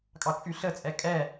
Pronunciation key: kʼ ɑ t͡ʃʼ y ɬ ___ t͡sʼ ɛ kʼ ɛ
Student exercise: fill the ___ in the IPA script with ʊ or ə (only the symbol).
ə